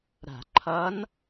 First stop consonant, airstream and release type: click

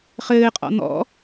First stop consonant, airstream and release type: ejective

